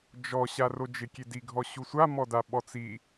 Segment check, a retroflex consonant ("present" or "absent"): absent